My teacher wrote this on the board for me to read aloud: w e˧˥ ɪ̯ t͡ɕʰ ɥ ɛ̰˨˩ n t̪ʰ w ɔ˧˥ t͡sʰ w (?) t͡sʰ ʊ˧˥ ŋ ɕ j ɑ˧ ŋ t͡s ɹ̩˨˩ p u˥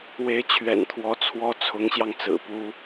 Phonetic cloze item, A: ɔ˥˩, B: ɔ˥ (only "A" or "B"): B